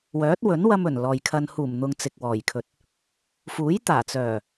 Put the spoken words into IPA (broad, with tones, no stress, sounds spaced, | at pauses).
w œː˨˥ t̚ w ɵ˨˥ n w ɐ˧ m ɵ˨˩ n l ɔː˨ j kʰ ɐ˧ n h uː˨˩ m n̪ ʊ˨ ŋ t͡s ɪ˨ k̚ w ɔː˨˩ j kʰ ɵ˨ t̚ | f uː˨˥ j t̪ aː˨˩ t͡s œː˨˩